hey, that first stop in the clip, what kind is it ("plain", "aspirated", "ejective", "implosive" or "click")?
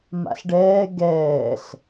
plain